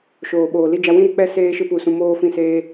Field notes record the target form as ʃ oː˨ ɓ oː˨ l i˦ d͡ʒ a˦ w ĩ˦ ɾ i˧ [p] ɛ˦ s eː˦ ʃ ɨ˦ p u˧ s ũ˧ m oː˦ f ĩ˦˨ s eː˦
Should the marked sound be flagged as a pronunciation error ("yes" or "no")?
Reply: yes